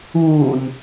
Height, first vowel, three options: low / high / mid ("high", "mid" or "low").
high